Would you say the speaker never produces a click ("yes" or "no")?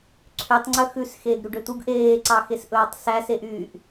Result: no